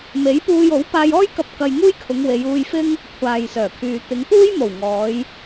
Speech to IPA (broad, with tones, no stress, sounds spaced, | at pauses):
m e˨˥ j p uː˧ j o˨˥ w p aː˧ j ɔː˥ j k ɐ˧ p̚ k ɐ˧ j ŋ uː˥ j kʰ ʊ˨˧ ŋ w e˨˧ j uː˧ j f ɪ˥ ŋ | kʷʰ aː˨ j s œː˨˩ kʰ yː˨ t̪ ɪ˨˧ ŋ p uː˥ j m o˨˩ w ŋ ɔː˨˧ j